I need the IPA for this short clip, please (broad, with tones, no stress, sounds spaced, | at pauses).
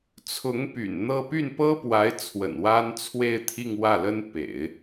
t͡sʰ ʊ˧˥ ŋ p y̰˨˩ n n̪ ɤ˥˧ p y˥˩ n p ɤ˥ p w a˧˥ ɪ̯ t͡sʰ w ə̰˨˩ n w a˥ n t͡sʰ w e˥˧ ɪ̯ t̪ʰ i˥˧ ŋ w ä˥˩ l ə˥ n p ḛ˨˩˦ ɪ̯